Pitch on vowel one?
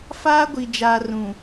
high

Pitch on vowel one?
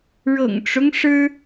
low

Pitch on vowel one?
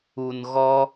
low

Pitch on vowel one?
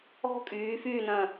high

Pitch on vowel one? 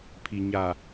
low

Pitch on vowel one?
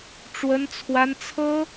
high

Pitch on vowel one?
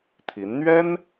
rising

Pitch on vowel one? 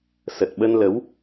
low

